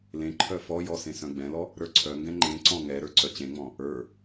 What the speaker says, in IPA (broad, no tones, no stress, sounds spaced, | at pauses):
l ẽ ǃʰ œ f ɔ j ɔ s ẽ s œ̃ ɡ͡b ɛ̃ l ɔ | ɾ ə˞ ǀʰ œ ŋ ɡ ɛ̃ ŋ͡ǃ ẽ ǀ ɔ̃ ŋ ɛ ɾ ə˞ ǀ œ t͡ɕ ẽ ŋ͡m ɔ̃ | ə˞